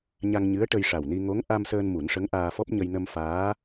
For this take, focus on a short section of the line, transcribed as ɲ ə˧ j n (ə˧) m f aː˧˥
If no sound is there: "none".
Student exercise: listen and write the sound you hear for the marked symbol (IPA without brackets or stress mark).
ə˧